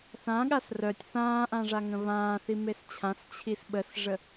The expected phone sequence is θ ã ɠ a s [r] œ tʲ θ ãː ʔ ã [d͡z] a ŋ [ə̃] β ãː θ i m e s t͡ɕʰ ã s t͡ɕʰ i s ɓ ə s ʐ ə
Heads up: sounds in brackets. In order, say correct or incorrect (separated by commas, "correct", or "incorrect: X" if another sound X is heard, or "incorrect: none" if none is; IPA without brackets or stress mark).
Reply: correct, incorrect: ʐ, correct